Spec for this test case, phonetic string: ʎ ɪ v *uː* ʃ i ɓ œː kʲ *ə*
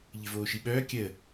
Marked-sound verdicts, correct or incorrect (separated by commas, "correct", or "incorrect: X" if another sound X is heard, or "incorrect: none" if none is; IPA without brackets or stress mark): incorrect: oː, correct